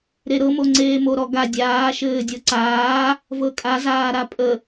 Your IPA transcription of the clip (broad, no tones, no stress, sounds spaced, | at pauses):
ɾ e ɾ ɤ m o ŋ͡ǀ eː m o ɾ ɔ ɡ a dʲ aː ʃ ɘː dʲ ɤ ǀ aː | v ɤ kʼ a z aː ɾ a pʼ ə